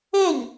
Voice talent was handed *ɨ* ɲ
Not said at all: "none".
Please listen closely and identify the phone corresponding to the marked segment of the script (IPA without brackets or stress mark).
e